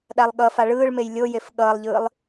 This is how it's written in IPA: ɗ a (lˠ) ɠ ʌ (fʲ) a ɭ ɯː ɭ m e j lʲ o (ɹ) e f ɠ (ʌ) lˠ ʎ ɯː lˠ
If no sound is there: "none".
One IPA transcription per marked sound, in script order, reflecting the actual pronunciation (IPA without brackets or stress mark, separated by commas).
lˠ, f, j, ʌː